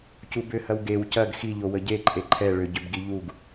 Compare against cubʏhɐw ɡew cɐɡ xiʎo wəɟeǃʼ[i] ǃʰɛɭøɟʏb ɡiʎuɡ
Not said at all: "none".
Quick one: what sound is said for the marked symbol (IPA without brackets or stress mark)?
e